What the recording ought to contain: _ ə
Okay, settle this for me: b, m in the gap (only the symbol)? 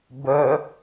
b